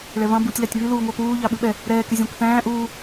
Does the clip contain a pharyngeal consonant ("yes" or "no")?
no